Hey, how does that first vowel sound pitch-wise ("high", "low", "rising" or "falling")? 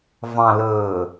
low